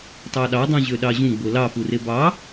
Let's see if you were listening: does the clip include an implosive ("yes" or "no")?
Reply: yes